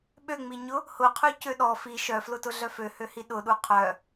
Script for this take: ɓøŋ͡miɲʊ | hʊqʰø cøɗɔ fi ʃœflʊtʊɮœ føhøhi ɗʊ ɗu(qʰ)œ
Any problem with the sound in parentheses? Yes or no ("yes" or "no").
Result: no